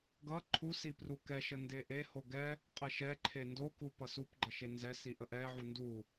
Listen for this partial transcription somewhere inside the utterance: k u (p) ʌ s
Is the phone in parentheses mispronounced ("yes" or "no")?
no